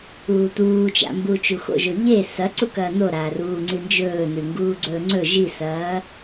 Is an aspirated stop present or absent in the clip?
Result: absent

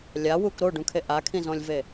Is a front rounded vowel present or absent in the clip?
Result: absent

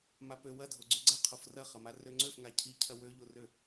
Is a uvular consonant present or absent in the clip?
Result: present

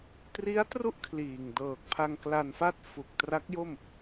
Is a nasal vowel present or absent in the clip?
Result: absent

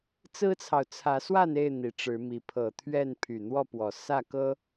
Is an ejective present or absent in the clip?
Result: absent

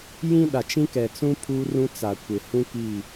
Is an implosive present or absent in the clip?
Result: present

